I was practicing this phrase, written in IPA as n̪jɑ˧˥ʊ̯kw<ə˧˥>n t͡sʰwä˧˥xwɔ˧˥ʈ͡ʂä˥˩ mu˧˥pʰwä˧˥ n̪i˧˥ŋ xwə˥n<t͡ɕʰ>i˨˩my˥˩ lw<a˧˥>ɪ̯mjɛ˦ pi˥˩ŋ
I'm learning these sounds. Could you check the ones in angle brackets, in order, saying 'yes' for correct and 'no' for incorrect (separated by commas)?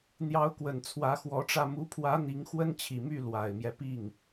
no, yes, no